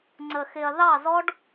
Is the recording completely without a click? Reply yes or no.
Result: no